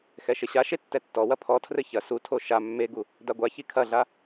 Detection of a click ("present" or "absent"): absent